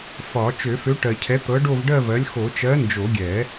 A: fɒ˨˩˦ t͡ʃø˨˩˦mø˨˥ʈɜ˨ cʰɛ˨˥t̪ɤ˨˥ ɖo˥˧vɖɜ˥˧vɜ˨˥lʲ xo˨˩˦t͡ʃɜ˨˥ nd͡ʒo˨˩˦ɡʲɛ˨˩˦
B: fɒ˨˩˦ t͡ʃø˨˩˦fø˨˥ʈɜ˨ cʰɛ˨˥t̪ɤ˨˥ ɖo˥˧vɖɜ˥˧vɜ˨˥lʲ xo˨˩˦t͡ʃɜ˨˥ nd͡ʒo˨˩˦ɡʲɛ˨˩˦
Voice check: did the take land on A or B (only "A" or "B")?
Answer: B